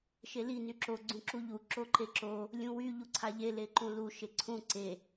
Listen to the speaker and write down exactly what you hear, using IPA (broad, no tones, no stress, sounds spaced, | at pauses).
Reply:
ʃ e l i n y ǁ o ɡ͡ǀ ũ ǁ u ʎ u ǁ o ǃ e ǁ o | lʲ ũ w y ʎ u ǀʰ a ʎ e l e ǃ ũ l u ʃ e ǀʰ ũ ǀ e